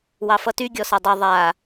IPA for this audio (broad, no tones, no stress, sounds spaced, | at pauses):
w ɑ f ʌ t y ɡʲ ɔ s ʌ dˤ ʌ ðˤ a